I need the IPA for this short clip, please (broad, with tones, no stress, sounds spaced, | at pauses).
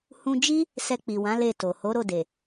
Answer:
h ũ˧ d͡ʒ i˦ | s ɛ˧ k͡p i˨ w ã˨˦ l e˦˨ t o˨ h o˨˦ ɾ o˦˨ d e˨